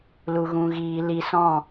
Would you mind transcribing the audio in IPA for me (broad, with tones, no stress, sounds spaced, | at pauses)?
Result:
l u˧ ɣ ũ˧ ɣ iː˧ l i˧ s ɔ̃˦˨